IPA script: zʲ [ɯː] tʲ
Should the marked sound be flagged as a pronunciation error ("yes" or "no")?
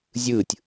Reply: no